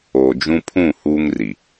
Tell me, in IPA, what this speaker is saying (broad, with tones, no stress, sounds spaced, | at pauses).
o˨ d͡ʒ ũ˦ pʰ ũ˦˨ h uː˦ ŋ r i˨